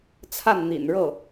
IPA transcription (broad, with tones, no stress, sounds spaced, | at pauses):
t͡sʰ a˥˩ n n̪ ḭ˨˩ n ɻ ɤ˥˩